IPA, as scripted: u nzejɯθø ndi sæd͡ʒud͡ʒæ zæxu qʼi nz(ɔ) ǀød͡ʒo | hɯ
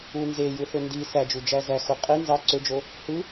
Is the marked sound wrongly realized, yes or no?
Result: yes